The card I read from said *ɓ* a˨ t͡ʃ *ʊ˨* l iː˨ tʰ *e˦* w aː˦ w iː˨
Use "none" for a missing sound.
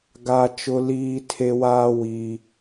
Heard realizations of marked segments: ɡ, ʊ˨, e˦

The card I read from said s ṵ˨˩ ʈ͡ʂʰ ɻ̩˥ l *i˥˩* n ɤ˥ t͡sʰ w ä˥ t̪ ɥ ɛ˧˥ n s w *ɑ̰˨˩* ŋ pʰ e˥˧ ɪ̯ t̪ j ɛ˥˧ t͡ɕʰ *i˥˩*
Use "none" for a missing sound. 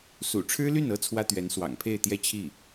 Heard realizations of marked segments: y˥˩, ɑ̰˨˩, i˥˩

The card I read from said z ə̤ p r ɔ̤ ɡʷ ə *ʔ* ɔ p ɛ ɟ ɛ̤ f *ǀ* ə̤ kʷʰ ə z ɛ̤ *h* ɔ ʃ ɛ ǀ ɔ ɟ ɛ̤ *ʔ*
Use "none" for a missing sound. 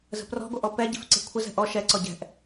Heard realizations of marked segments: ʔ, ǀ, ʔ, ʔ

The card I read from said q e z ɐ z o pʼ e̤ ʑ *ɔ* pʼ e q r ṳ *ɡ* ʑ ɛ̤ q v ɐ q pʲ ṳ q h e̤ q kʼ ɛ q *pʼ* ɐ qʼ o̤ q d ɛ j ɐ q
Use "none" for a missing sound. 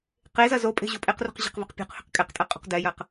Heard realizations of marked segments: o, q, tʼ

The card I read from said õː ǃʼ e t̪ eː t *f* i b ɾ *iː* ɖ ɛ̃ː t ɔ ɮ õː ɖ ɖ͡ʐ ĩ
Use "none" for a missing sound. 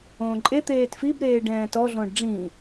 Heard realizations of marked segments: f, eː

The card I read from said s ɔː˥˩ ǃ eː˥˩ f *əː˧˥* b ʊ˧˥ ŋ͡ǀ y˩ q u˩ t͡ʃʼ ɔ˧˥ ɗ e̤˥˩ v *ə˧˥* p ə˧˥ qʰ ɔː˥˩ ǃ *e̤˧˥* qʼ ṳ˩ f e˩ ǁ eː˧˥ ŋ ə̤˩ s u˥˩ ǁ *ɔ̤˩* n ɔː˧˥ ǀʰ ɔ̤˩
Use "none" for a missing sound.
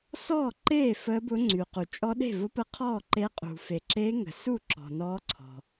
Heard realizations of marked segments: əː˧˥, ʊ˧˥, e˧˥, ɔ̤˩

